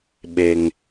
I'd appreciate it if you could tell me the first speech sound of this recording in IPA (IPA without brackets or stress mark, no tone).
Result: ɓ